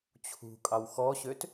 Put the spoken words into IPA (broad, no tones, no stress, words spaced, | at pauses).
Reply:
t͡ɕʰṳ kʼɑwxɔɕøt